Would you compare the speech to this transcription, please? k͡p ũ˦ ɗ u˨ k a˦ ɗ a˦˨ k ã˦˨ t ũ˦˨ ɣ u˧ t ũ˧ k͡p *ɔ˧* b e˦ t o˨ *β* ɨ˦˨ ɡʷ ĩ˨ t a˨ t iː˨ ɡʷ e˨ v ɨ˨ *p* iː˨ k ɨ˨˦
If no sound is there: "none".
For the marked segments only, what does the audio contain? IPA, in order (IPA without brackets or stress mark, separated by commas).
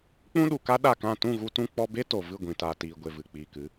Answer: ɔ˧, v, k͡p